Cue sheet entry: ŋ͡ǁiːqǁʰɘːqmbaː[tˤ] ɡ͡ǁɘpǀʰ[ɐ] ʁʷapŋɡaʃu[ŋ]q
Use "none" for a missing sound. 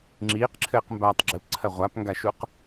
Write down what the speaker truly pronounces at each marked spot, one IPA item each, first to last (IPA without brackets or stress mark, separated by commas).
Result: tˤ, ɐ, none